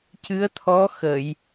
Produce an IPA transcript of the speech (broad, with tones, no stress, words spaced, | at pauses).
cɨ˧˥ə̯t̪ʰɔ˧˥ xə˨˩˨j